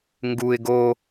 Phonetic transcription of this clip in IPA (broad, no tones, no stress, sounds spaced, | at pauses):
ŋ ɡ u ɪ̯ ɡ o